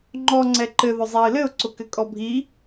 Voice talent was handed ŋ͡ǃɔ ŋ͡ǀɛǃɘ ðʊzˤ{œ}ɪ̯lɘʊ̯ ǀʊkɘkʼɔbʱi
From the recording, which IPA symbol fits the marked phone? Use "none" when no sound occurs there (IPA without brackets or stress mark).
æ